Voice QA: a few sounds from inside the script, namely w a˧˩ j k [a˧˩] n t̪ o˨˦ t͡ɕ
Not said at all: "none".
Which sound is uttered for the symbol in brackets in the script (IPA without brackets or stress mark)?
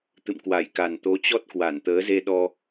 a˨˩